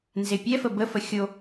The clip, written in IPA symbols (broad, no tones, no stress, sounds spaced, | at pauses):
n z e pʲ ɛ f ə b ə f ə xʲ o